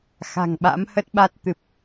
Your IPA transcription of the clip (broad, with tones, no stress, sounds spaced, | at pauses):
x a̤˨˩ ŋ ɓ a̰˧˥ m h ə˦˥ t̚ ɓ a˦˥ t̚ t̪ ɨ˨˩ p̚